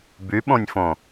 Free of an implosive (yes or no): no